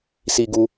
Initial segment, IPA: s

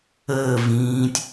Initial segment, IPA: əː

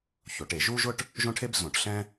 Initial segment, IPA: ç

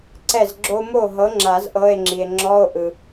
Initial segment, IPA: ǀ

